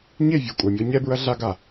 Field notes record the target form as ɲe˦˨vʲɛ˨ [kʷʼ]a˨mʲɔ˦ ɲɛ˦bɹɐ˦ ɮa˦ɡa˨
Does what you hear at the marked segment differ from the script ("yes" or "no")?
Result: no